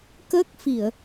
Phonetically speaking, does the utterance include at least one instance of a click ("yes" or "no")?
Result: no